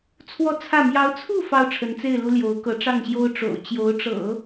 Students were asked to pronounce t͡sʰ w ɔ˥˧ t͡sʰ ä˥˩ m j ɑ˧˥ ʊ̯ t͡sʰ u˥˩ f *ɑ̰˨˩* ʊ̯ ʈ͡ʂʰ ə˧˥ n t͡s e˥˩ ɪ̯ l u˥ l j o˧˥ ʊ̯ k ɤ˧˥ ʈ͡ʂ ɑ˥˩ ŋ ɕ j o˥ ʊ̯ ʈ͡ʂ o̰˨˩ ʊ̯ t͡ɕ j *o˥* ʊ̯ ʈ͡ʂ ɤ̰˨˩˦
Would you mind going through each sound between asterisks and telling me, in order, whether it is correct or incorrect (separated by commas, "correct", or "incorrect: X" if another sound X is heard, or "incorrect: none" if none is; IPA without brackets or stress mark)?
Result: incorrect: ɑ˥, incorrect: o˧˥